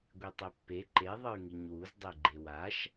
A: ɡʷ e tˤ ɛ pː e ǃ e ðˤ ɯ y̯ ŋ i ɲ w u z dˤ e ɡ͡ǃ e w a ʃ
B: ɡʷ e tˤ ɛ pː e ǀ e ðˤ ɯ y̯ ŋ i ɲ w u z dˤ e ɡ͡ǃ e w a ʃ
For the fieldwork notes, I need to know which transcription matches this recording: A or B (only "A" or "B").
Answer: A